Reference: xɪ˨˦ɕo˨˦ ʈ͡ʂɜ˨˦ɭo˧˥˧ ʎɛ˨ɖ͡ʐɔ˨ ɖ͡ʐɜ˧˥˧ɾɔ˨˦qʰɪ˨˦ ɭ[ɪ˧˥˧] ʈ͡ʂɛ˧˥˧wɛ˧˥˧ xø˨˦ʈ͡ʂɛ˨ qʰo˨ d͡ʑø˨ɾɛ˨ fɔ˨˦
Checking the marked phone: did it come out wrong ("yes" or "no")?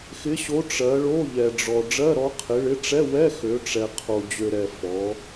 no